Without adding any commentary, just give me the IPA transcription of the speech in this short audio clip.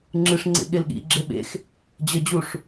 ŋ͡ǁ ɨ ʂ ŋ͡ǀ ḛ ɠ e l ɠ ḭ ɡ͡ǁ e ɓ ḛ x | d͡ʑ ə d͡ʑ u ʂ

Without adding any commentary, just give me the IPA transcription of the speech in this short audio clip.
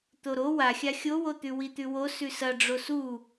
t̪ o ɾ o w a xʲ a xʲ o w o t̪ ʉ w i t̪ ʉ w o s ʉ s ɐ ɖ͡ʐ o s u

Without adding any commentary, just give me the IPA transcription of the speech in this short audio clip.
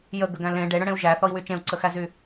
j ə ɡ ə ɡ æ̃ l ẽ ɖ e ɽ ə̃ ɽ ẽ u̯ ʒ æ θ ɔ i̯ w y t͡ʃ ẽ u̯ ǀ ə x æ z y

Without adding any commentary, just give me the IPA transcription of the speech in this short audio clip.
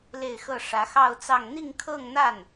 l e˥˧ ɪ̯ x ɤ˥˩ ʂ ä˧˥ x ɑ˥˧ ʊ̯ t͡s ɑ˥˧ ŋ n̪ i˥˧ ŋ kʰ ɤ˥˧ ŋ n̪ a˥˩ n

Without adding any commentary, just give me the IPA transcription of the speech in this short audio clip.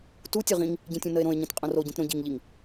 t u tʲ o ʁ ĩ ŋ | ɟ ĩ tʲ ũ n ə e̯ ɾ õ e̯ ɲ ĩ t qʼ õ r o ɟ ĩ t ɾ õ ɟ i ŋ ʎ i ŋ

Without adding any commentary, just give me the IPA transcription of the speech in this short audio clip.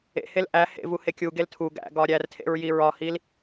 ḛ h e l ʔ æ h ḛ v u h e kʲ u ɡ e l tʰ u ɡ æ̰ ɡ ɒ ɾʲ æ r tʰ ḛ ɹ j i ɹ ɒ h i l

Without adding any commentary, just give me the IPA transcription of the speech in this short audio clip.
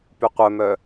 p y qʷ œ m œ

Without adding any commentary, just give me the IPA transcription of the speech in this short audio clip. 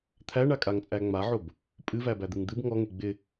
t̪ʰ æ ɳ a kʼ a ŋ t͡sʼ æ ŋ͡m a ʕ o b | pʼ ɨ v æ b æ d̪ ɨ ŋ d̪ ɨ b ŋ ɔ ŋ e ɡ͡b ɪ

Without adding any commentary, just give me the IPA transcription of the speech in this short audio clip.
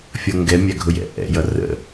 fʲ ʌ ŋ ɡ ɛ mʲ æ ɡʱ ʊ j ɛ̰ ʔ ɛ̰ j ʌ r ə̰

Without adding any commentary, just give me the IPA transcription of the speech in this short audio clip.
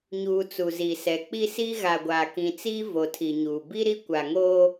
ɲ uː˨ t͡s u˨ z i˨ s ɛ˨ k͡p i˦ s i˦ ɣ a˨ ɡʷ aː˨ k ĩ˨ t͡s iː˦ v o˨ tʰ i˨ ɲ uː˨ b i˦ ɾ i˦ kʷ a˨ ŋ oː˦

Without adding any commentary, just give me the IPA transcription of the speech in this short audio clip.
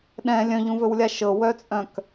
ɗ ɛ̃ lʲ œ̃ ʎ ũ v ɵ w lʲ a ʃ ɤ w œ t͡sʼ œ̃ k

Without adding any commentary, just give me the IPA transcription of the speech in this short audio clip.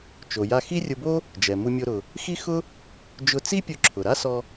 t͡ʃ o˩ j a˧ x i˥ rʲ ʊ˧ b o˥ | d͡ʒ ɛ˩ m u˧ mʲ o˧ ɾ ʊ˩ | x i˥ x ʊ˥ | d͡ʒ ʊ˧ t͡s i˥ pʲ ʊ˧ ǁʰ ʊ˩ ɾ a˥ s ɔ˧

